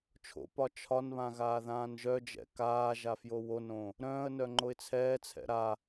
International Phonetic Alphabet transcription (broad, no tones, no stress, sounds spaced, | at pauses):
t͡ʃʰ o̰ p ɒ t͡ʃʰ ɒ n β ã ɣ aː ð ãː n ʒ œ d͡ʒ ɛ̰ k aː ʒ a f j o w o n õ | ɾ œ̃ː ə̯ n œ ŋ͡ǃ o ɪ̯ t͡sʰ ɛː t͡sʰ ɛ̰ ɾ a